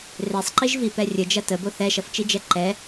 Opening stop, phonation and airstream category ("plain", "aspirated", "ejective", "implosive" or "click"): click